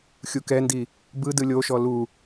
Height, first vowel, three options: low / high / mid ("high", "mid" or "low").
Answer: high